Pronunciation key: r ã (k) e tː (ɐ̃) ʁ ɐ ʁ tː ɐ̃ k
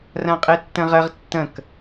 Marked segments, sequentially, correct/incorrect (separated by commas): incorrect, correct